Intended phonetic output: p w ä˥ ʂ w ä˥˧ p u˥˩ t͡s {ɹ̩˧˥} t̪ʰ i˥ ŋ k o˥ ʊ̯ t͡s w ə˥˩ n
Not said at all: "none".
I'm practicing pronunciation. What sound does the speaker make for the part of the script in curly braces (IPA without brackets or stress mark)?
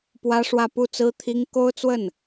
ɹ̩˥